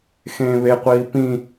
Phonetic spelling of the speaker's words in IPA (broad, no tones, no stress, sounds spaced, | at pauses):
x ẽː β e qʷ iː p ĩ